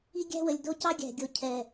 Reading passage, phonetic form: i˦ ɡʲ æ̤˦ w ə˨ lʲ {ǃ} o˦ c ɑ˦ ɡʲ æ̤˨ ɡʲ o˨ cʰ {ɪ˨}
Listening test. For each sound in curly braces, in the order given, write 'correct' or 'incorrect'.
incorrect, incorrect

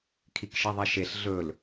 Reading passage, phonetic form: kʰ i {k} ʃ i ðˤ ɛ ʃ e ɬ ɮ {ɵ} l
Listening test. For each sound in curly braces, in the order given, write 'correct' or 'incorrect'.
correct, correct

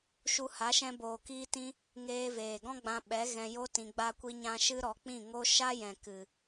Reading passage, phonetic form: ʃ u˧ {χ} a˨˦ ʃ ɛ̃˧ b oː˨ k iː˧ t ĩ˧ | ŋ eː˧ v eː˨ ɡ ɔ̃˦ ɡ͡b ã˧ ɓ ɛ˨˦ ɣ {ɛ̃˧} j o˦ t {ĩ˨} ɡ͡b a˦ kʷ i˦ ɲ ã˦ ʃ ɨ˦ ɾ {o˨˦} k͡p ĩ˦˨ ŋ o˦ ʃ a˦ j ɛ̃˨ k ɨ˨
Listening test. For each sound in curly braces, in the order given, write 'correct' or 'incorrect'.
incorrect, correct, incorrect, incorrect

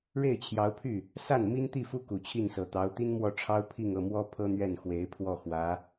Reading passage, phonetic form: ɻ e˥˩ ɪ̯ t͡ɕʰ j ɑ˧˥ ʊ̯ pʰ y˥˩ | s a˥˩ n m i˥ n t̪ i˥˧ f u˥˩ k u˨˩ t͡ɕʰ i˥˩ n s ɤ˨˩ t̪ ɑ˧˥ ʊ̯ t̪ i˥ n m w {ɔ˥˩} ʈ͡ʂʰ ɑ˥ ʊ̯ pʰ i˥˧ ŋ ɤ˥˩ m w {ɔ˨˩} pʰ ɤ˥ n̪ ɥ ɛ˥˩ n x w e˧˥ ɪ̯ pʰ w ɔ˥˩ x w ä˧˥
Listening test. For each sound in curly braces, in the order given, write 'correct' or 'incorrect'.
correct, incorrect

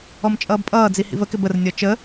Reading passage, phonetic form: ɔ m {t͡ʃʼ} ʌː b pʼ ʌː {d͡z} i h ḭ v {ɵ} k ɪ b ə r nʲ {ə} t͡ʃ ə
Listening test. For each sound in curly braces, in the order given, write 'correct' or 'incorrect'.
correct, correct, incorrect, incorrect

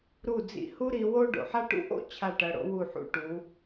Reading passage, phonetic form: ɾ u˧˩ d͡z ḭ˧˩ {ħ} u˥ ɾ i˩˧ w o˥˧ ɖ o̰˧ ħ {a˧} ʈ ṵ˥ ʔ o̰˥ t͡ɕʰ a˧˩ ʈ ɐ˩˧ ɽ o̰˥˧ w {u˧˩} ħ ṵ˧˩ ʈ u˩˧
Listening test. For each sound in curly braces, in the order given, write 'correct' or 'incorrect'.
incorrect, incorrect, correct

